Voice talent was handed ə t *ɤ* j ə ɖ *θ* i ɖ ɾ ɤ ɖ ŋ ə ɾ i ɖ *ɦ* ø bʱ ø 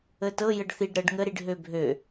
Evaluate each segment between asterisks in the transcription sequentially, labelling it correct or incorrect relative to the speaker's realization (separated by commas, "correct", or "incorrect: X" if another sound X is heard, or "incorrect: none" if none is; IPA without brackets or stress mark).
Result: correct, correct, correct